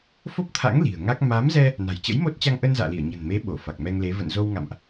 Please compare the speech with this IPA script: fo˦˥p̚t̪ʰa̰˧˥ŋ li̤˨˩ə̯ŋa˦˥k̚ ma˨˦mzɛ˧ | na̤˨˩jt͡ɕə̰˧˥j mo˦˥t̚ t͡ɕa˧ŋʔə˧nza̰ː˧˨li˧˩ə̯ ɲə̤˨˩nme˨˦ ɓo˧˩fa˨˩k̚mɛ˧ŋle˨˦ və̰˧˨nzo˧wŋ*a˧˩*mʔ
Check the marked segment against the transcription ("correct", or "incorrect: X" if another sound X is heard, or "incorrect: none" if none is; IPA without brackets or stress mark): incorrect: a̰˧˨